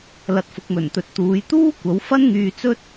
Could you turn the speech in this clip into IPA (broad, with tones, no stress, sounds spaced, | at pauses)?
l ɐ˨ t̚ f ʊ˨ k̚ m ɵ˨˩ n t̪ ɵ˨ t̚ t̪ uː˨˧ j t̪ uː˥ kʷ ɐ˨˥ w f ɐ˥ n ŋ yː˧ t͡s ɵ˥ t̚